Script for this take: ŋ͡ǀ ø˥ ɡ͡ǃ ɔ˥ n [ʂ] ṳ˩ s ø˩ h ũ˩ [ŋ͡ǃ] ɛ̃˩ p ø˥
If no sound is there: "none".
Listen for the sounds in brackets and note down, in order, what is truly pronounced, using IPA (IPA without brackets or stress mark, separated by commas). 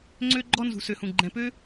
z, ɡ͡ǃ